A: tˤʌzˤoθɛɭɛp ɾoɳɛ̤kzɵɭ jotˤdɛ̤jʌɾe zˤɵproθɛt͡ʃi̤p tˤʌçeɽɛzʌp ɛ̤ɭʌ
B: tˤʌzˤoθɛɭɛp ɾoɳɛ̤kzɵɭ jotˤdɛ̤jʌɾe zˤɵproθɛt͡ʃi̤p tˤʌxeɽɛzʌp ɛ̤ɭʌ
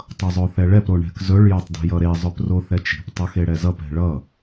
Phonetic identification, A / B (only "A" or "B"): B